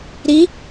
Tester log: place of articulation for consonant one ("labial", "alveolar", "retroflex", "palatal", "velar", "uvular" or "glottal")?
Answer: alveolar